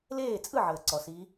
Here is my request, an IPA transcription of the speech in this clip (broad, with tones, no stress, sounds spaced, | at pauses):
l eː˥˩ t͡sʼ ɯ˥˩ ʕ əː˩ ǀ ɔ˩ s i˨˦